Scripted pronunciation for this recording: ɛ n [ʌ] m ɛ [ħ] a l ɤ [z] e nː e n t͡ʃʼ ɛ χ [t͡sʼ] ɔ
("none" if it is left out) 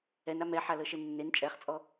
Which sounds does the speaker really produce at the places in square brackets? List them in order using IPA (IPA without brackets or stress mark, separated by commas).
a, ħ, ʃ, t͡sʼ